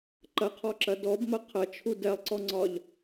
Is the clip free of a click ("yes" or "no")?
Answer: no